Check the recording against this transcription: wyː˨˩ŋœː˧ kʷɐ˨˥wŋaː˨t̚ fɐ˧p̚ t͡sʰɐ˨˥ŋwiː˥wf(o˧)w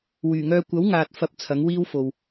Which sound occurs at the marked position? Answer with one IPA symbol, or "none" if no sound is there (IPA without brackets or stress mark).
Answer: o˨